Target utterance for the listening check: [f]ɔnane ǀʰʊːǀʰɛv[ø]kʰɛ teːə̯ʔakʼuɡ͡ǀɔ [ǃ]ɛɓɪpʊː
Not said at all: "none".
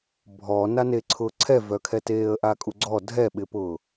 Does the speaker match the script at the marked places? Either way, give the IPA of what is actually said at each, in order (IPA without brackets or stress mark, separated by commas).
bʱ, œ, dʱ